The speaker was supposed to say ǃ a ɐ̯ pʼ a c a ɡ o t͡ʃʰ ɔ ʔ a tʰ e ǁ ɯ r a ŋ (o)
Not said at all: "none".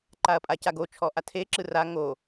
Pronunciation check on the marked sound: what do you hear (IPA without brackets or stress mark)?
o